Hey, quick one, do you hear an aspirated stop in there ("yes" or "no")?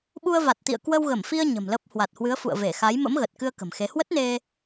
no